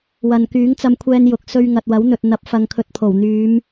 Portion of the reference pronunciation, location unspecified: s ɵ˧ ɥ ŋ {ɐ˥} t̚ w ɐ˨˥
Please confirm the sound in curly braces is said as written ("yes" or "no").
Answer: no